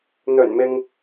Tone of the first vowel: low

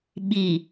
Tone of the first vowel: low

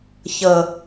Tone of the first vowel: low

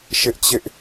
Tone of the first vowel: high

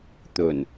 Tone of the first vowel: low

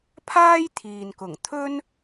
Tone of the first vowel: high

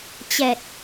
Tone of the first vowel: low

